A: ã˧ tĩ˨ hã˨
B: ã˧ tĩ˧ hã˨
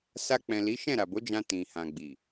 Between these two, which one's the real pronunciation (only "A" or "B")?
A